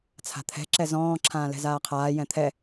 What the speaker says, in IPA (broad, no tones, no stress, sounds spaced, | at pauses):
t͡sʰ a̤ t̪ʰ ɛ̤ ǁ ɛ z ɔ̃ː ǁʰ ãː l ɛ̤ z aː qʰ aː j ɛ̃ t̪ʰ ɛ